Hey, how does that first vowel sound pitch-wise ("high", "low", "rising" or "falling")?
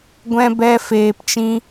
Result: high